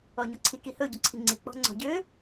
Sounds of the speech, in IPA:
ɔɲɔǀʰi kihɵ ɟɔǀʰiŋ͡ǀi k͡pɔ̤ŋ͡ǀɔ̤ɟø

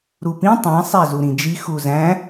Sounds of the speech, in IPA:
ɾupĩ tˤæ̃ sˤæzuɾĩd͡ʒi xuzæ̃

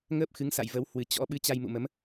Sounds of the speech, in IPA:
ŋəː˦˥p̚xɨ˨˦ŋsa̰˧˨j və˨˦w hwɨ˨˩ t͡ɕɔ̰˧˥ ɓɨ˧t͡ɕa˧j mṵ˧˨mə˨˦m

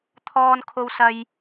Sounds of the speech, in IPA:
t̪ʰɔː˥nkʰo˥wsɐ˥j

